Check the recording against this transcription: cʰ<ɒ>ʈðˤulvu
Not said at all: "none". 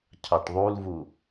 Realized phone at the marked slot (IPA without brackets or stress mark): ɑ